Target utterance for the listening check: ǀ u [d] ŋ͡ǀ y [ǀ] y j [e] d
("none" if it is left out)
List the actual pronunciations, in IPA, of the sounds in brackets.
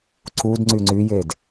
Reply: d, ŋ͡ǀ, e

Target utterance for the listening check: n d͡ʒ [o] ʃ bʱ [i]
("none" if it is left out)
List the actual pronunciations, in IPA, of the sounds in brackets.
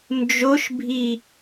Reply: o, i

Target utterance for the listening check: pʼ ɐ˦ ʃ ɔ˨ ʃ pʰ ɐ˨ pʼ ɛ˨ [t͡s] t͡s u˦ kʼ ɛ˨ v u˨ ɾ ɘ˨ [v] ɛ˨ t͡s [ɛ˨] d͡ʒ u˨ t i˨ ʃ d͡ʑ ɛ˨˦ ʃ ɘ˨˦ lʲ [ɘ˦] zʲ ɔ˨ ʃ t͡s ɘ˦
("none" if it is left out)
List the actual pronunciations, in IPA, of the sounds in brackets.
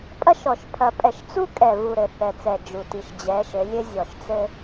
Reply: ʃ, θ, ɛ˨, ɘ˦

